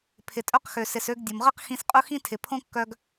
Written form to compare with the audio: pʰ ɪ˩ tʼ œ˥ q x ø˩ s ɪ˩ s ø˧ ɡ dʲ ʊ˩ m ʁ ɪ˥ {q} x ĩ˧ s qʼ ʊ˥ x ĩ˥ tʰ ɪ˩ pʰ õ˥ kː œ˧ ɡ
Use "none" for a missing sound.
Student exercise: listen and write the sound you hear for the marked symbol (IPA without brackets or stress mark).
q